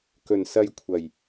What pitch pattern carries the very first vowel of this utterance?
low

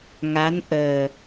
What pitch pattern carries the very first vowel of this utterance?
rising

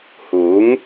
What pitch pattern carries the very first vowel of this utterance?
rising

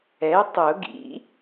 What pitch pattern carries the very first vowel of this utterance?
rising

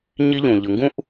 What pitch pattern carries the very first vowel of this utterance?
high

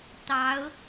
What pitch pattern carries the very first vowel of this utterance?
rising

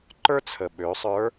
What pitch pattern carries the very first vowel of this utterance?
high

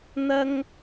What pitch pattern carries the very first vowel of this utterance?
high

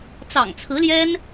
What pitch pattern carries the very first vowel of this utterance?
low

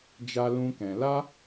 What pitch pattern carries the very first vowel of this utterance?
high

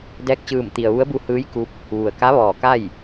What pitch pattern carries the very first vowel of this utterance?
rising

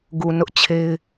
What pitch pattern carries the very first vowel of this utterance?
low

